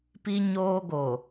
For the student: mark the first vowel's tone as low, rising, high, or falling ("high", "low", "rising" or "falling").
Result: high